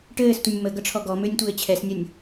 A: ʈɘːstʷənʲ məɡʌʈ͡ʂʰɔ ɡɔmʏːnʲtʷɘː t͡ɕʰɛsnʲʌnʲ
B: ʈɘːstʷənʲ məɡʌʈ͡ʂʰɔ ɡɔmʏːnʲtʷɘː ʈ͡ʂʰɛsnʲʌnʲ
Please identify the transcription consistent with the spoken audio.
A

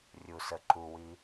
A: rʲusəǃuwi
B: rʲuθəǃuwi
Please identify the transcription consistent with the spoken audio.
A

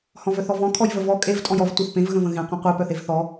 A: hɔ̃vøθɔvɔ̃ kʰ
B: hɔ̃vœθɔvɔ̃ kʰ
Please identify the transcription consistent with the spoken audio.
B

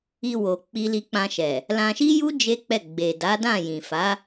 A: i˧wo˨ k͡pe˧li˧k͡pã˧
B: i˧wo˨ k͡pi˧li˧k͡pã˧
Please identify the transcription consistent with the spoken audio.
B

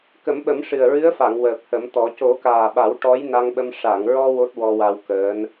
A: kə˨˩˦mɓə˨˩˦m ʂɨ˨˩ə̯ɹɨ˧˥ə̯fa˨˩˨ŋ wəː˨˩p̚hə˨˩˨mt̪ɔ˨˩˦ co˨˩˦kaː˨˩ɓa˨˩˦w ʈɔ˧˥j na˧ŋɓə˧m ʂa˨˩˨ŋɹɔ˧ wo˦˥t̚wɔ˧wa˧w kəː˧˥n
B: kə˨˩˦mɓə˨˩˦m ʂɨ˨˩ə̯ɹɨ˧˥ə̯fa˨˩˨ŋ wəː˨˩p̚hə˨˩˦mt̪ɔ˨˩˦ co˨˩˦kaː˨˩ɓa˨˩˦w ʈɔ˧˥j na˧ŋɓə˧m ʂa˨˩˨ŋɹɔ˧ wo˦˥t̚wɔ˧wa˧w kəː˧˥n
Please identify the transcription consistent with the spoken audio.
B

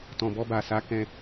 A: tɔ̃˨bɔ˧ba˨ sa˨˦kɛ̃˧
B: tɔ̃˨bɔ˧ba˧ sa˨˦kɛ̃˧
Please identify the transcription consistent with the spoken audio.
A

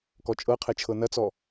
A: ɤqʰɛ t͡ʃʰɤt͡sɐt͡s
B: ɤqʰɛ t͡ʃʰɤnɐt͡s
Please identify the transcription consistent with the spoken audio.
B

